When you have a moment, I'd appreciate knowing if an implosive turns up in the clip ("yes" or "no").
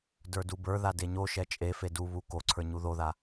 no